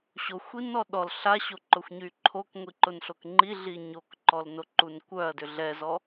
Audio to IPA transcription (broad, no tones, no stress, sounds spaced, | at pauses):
ɕ o xʷ i n ɔ ɗ ɔ l ɬ a ɕ o ǃ ʊ xʷ ɲ y ǃʰ o k ŋʷ i ǃ ʊ n ɬ o k ŋ͡ǃ i ɮ i ɲ o k ǃ ɔ l n o ǃ u n kʷ œ ɐ̯ d ʏ ɮ ɛ z ɔ